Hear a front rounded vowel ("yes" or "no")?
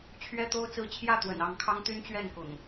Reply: yes